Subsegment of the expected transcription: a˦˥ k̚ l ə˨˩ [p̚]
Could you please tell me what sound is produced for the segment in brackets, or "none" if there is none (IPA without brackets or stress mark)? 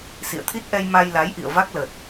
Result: t̚